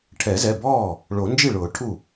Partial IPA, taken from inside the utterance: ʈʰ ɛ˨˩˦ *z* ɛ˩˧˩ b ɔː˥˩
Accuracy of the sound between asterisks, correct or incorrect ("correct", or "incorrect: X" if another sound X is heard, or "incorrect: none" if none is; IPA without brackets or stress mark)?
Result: correct